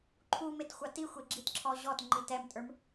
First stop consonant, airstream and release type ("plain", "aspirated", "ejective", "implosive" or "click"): click